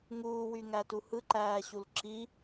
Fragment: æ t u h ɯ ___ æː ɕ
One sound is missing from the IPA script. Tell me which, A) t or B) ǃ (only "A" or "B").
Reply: B